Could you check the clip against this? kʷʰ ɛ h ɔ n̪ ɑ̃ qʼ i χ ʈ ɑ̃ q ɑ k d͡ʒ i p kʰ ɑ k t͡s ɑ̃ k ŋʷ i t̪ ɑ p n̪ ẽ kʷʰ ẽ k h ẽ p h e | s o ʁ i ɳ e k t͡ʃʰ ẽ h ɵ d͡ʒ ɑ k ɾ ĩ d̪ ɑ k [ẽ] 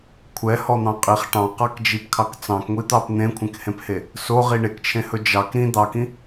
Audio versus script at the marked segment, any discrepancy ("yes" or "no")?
yes